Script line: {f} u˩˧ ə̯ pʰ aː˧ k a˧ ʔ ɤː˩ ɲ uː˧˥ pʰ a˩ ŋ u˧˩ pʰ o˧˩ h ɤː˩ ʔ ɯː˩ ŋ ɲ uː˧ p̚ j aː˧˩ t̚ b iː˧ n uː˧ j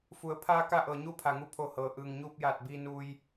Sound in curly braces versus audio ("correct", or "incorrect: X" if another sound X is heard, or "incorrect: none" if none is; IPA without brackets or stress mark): correct